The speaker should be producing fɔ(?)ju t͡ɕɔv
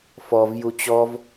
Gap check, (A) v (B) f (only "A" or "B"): A